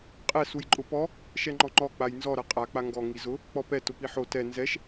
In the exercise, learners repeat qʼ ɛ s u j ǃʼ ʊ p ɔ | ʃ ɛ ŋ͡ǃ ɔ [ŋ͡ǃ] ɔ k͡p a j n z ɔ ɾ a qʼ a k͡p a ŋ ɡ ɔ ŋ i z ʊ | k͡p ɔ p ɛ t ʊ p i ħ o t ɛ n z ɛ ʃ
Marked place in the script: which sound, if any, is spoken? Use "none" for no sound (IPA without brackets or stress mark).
ŋ͡ǃ